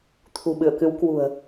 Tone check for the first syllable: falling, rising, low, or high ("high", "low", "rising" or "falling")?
low